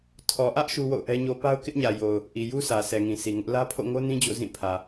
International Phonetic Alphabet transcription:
tʰ ɔ˨ ʔ ä˦ ʔ ʃ u˦ w o̰˦˨ ʊ̯ ʔ ɛ˦ ɲ o˦ p a˦ ʊ̯ k ɪ˦ ʔ ɲ ä˨ j o˨ ʊ̯ | ʔ i˨ j u˦ sʰ ä˨ s ɛ˨ ŋ ĩ˨ sʰ i˨ ŋ ʊ˦ ʔ l ä˦ pʰ o̰˦˨ ŋ o˦ n ĩ˦ d͡ʑ o̰˦˨ z ĩ˦˨ pʰ ä˨

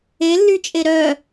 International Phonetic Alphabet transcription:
e lː y t͡ʃʼ e ɾ œ

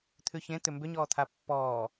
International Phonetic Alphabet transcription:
t̪ʰ ʉ ç ẽ t̪ ʏ m b ʏ ɲ ɔː t̪ʰ a pː ɔː

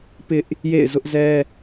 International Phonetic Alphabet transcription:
p ɪ˦ ʔ | j ḛ˦˨ ɪ̯ z ʊ˦ ʔ z ɛ˦

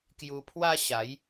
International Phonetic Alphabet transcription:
k j u˧ pʰ w a˦ ɕ a˨˦ j

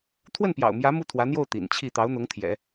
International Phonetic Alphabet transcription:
t̪ʰ w ə˥˩ n p j ɑ̰˨˩ ʊ̯ m j ä˧˥ m u˥˩ t̪ʰ w ä˧˥ n̪ j o˥˩ ʊ̯ t̪ ḭ˨˩ n t͡ɕʰ i˥˩ t̪ ɑ˧˥ ʊ̯ n̪ ʊ˧˥ ŋ t̪ʰ j ɛ̰˨˩˦

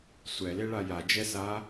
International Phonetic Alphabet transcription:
sʷ ɛ l e ɭ a j a d͡ʒ ɛ s a

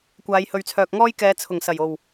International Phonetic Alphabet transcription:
kʷ aː˨˧ j h ɵ˨ ɥ t͡sʰ œː˨ k̚ ŋ ɔː˥ j k ɛː˨˧ t͡sʰ ʊ˨˩ ŋ s ɐ˨˩ j o˨˩ w

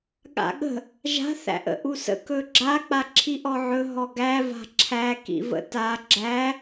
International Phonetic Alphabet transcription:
ɠ a̰ ɠ ə̤ | ʒ a̤ θ æ̰ ʔ ə̰ ʔ u s ə̰ k ɵ ɡ͡ǁ a k͡p a ǁʰ i ʔ ɔ ʕ ɵ ɦ ɔ ɡ æ v a̤ ǁʰ æ k ḭ v ə̰ t a ɡ͡ǁ æ

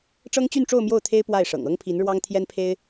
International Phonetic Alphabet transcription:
ʈ͡ʂ ɤ˥ ŋ t͡ɕ y˥˧ n ʈ͡ʂ o˥˧ ʊ̯ m j o˥˩ ʊ̯ t̪ʰ e˥ ɪ̯ p w a˥˩ ɪ̯ ʂ ɤ̰˨˩ ŋ ɤ˥ ŋ pʰ i˧˥ n ɻ w ɑ˥ ŋ t̪ʰ j ɛ˥ n pʰ e˥ ɪ̯

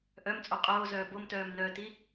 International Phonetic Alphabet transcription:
ʔ œ m t͡sʼ o qʼ oː z œː b o m t œː m n œː t i

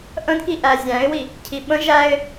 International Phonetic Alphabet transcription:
ʔ ə̃ d k i ʔ æ zʲ æ̃ ɪ̯ w i | cʰ i ɓ ə̃ ʒ æ ɪ̯

